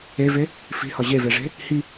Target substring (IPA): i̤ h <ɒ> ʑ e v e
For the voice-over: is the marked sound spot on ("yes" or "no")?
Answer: yes